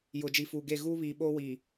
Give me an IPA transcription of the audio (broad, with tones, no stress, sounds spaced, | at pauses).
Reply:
j ʊ˨ d͡ʒ i˨ f uː˨ ɡ e˦˨ ɣ uː˦ β iː˨ ɓ oː˦ w iː˨